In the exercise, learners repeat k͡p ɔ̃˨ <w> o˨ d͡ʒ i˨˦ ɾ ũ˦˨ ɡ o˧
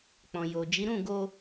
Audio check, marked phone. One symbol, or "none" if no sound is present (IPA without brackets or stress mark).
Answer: j